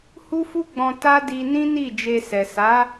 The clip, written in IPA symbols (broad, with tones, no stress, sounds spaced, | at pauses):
h u˦ f u˦ ɡ͡b ɔ̃˧ t a˦ d i˧ n ĩ˦ n i˦˨ d͡ʒ e˧ s ɛ˨ s a˨˦